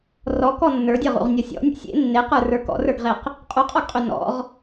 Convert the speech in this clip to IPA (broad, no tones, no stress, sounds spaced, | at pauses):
r ɔ k ɔ nː ə˞ dʲ ɤ ʁ ṵ ʁ nʲ ɔ sʲ ɔ̰ nʲ ṵ sʲ ḛ nː e q ə˞ r ə˞ k ɔ̰ r ə˞ ɡ ʁ e q | qʼ u qʼ ɔ ɡ qʼ ø n ɔ̰ ʁ